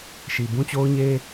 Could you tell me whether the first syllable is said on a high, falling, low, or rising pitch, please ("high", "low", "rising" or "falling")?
low